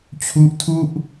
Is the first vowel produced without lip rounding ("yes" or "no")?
no